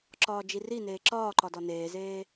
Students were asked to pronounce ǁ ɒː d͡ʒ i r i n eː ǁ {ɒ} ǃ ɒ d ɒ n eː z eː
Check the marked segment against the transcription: incorrect: ɒː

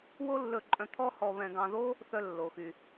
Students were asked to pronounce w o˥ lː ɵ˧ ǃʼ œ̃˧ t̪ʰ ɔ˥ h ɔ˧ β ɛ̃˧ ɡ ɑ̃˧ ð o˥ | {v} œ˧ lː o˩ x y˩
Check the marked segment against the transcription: incorrect: θ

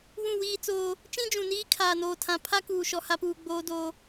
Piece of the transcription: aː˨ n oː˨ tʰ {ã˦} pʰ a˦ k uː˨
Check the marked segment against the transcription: incorrect: ã˨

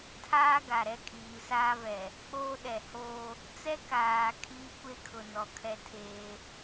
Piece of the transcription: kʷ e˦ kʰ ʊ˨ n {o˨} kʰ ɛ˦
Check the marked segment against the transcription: incorrect: ɔ˨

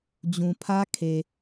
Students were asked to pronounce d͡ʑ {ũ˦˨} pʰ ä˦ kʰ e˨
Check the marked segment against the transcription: incorrect: ũ˨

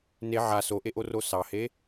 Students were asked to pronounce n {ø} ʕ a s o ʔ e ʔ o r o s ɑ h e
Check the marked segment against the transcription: incorrect: e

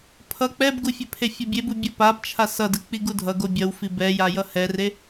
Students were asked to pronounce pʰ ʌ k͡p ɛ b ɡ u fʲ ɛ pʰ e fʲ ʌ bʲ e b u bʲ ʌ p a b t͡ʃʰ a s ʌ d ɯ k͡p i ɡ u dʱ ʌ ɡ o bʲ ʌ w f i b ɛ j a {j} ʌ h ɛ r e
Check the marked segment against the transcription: correct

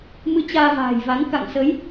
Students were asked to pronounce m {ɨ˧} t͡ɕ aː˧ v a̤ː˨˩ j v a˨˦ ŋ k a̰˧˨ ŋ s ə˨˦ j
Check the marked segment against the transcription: correct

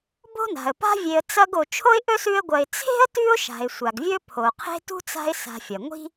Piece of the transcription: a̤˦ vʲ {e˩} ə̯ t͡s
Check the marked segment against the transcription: incorrect: e˨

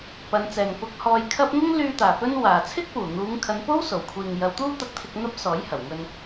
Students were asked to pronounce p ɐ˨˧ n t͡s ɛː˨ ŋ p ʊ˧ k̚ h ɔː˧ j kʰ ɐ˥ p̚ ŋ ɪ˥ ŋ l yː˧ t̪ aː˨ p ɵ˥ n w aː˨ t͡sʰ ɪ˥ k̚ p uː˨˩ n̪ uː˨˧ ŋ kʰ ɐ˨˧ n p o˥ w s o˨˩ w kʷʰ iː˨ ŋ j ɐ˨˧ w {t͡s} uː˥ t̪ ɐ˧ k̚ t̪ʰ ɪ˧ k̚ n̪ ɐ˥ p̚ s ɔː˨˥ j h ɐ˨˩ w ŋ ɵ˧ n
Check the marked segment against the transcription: incorrect: t̪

